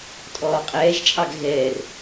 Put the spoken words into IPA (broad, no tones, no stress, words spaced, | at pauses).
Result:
tʼɔːqʼɛːʒt͡ʃʼɑɡ ɣɛːr